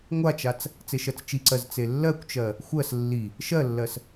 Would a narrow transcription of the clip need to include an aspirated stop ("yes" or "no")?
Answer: no